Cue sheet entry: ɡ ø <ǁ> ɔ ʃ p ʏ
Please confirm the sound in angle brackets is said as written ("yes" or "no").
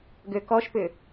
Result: no